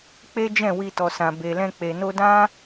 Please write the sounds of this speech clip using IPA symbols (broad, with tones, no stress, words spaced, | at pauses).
k͡pe˦d͡ʒɛ̃˦˨wi˧tɔ˨ sã˨be˨lɛ̃˧ k͡pe˨no˧dã˦